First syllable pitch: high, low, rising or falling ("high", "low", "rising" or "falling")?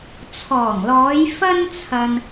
low